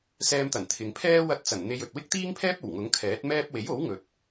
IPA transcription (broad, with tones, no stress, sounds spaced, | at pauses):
s ɛː˧ m t̪ ɐ˨˩ n t̪ʰ ɪ˨ ŋ pʰ ɛː˥ w ɐ˧ t̚ t͡s ɐ˨˩ n n̪ e˧ j ɵ˨ t̚ w ɪ˥ k̚ t̪ iː˥ ŋ pʰ ɛː˥ p̚ o˨˩ w ŋ ʊ˨˥ ŋ kʰ ɛː˨˥ t̚ m ɛː˥ p̚ w e˨˥ j o˨˥ w ŋ ɵ˨ t̚